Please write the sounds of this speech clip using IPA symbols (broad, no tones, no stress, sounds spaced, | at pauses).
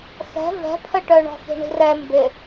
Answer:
x ɛ̤ v ɛ̤ pʰ ə ʈ œ ɳ ɔ̤ x i̤ ɳ i̤ r ɛ m b ɪ